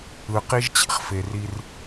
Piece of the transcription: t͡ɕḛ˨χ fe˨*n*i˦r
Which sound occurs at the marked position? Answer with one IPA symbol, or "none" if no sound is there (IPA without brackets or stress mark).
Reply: r